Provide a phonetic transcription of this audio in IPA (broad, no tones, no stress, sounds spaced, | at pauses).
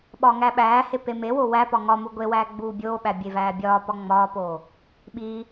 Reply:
ɓ ɒː ŋ æ ɓ æː h e p e m e w o w æ p ɒ ŋ ɒ m u ɡʷ e w æː ɡ͡b uː bʲ oː ɓ æ bʲ e v æː bʲ ɒː p ɒ ŋ͡m ɒː p oː | ɓ iː